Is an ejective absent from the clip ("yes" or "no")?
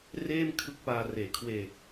yes